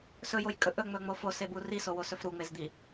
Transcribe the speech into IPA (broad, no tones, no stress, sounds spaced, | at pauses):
s ɵ j o j kʼ ɵ ʔ ɵ ŋ͡m ɵ ŋ͡m o f o s e b u r i s o w o s ɵ f ɾ u ŋ͡m e z d̪ i